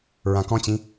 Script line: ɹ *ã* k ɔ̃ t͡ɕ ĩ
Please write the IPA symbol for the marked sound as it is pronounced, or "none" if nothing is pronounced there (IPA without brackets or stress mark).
ã